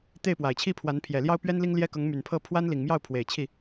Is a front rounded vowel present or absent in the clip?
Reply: present